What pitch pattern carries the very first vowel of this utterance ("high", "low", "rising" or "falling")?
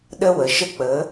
high